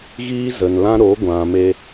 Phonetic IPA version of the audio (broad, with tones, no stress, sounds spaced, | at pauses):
ɣ iː˦ z ə˨ n l ã˦ ɾ o˨˦ ɡʷ ã˨ m e˧